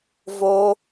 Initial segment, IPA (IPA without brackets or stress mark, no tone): v